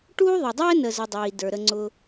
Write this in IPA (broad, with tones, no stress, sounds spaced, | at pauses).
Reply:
ʈ uː˥ ðˤ ə˨ dˤ ɛː˥ n ə˨ z ə˨ dˤ iː˩ d ə˞˩ ɾ ə˨ ŋ͡ǀ ʊ˨